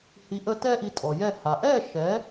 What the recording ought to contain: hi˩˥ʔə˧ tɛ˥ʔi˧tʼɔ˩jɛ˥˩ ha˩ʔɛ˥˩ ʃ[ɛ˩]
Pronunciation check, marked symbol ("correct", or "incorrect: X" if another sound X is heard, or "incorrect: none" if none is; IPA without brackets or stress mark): incorrect: ɛ˩˥